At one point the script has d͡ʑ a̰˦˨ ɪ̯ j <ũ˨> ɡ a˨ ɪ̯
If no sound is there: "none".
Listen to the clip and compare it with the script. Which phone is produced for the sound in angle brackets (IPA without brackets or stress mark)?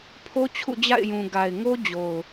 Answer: ũ˨